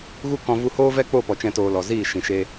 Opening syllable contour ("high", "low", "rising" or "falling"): high